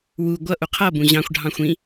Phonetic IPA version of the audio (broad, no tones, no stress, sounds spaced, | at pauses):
w u ɡʷ ʌ ʔ u qʰ ʌ b ũ ʑ ɑ̃ xʷ ɖʱ ɑ̃ xʷ ĩ